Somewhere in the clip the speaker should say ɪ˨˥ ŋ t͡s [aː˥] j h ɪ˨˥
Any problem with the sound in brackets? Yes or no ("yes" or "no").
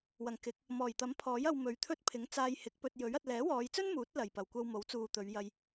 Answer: yes